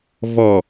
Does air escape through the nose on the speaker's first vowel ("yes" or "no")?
no